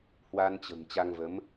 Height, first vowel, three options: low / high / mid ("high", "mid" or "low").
low